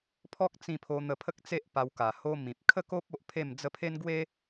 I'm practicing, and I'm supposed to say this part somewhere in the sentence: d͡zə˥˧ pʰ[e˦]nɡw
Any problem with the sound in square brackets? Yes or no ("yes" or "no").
no